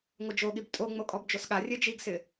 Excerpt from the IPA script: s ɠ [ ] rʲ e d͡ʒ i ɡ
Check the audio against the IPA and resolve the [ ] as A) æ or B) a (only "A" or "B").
B